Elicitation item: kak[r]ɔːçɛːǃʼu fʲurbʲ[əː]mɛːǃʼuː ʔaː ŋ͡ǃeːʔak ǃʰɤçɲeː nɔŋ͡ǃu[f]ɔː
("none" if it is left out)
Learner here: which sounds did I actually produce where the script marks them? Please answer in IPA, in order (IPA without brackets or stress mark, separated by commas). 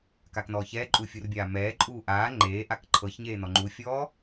n, aː, fʲ